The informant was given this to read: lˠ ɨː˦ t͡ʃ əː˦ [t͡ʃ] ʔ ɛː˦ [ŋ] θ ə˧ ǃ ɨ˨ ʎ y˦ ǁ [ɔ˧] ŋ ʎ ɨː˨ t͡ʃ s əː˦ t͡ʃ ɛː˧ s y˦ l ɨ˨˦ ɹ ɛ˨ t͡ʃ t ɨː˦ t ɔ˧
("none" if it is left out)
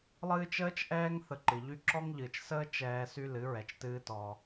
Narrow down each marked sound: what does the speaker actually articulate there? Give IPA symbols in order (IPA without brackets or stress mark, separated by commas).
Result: t͡ʃ, ŋ, ɔ˦